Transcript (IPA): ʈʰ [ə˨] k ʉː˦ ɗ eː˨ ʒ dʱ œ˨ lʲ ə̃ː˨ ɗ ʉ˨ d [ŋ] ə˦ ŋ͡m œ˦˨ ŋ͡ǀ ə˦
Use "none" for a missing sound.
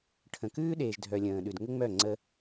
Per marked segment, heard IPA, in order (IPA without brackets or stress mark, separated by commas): ə̃˨, ŋ